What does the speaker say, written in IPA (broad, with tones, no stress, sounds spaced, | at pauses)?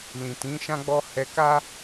l ĩ˨ t ĩ˨˦ ʃ ã˦ ɡ͡b ɔ˦ h ɛ˧ k a˦